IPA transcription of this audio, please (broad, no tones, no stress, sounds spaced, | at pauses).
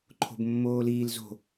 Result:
ǃʰ o̤ b mː oː l iː l z o̤